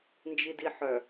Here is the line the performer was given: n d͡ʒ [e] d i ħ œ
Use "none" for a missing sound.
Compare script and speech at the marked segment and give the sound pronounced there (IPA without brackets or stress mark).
i